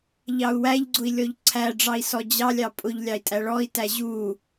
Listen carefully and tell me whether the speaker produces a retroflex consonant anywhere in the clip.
yes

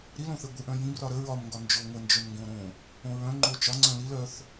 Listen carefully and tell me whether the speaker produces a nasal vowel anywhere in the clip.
yes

